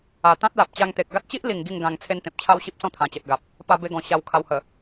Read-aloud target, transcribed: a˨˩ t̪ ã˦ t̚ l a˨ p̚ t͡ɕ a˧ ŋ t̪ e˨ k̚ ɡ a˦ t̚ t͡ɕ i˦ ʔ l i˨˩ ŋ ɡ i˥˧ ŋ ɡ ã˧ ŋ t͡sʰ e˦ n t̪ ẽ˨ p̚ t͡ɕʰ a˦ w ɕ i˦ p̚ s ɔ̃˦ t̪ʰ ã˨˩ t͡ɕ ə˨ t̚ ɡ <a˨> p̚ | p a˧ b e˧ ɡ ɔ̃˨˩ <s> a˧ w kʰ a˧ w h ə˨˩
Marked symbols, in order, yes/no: yes, no

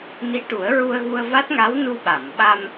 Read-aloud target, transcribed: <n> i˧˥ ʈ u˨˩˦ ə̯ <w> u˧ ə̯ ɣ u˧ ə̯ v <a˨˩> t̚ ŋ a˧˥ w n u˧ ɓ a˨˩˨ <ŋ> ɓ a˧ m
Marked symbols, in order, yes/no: yes, no, no, no

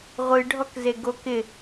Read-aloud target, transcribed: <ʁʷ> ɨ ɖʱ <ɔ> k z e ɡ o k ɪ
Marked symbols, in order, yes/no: yes, yes

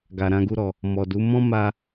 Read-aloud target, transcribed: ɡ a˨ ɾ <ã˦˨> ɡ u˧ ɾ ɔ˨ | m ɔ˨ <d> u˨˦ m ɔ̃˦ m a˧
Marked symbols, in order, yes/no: no, yes

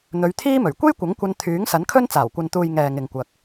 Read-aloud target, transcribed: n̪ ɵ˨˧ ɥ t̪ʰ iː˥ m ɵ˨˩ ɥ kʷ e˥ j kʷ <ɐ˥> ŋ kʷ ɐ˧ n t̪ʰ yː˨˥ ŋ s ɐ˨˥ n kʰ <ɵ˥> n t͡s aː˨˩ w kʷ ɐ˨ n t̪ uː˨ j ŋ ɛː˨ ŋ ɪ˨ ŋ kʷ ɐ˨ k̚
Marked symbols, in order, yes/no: no, yes

